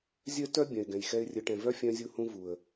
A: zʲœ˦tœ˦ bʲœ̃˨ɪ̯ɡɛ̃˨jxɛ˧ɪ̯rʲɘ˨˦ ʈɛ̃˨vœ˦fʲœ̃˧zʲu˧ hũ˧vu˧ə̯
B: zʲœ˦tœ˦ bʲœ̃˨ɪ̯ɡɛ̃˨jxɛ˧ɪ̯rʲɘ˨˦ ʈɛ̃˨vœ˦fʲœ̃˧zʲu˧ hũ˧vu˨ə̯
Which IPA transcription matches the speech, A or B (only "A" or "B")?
B